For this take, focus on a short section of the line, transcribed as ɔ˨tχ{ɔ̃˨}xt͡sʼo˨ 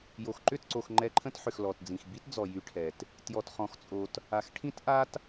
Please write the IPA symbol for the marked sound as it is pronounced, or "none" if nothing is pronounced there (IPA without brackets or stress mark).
ɔ̃˨